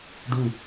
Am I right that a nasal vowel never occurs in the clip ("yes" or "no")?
yes